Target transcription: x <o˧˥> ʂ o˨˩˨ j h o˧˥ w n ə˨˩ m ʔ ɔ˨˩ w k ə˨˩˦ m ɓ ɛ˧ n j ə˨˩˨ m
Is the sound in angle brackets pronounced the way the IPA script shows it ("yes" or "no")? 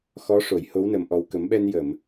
no